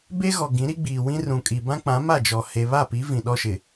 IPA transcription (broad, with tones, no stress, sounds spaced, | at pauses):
b e˦ ɣ ɔ˨ ɡ ĩ˨˦ ɾ i˦ ɡ͡b iː˨ w ĩ˦ r ũ˨ kʼ i˨ b ã˦ k͡p ã˨˦ m a˦˨ d͡ʒ ɔ˨ h e˨ β a˦˨ p i˨˦ v ĩ˨ ɗ ɔ˦ ʃ ɪ˨